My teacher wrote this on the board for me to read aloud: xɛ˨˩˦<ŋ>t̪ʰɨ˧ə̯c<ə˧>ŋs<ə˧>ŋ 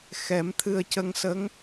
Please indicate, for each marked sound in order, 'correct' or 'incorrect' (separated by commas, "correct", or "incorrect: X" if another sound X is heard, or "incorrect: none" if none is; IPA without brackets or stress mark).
incorrect: m, correct, incorrect: ə˧˥